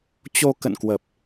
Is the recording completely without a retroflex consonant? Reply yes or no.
yes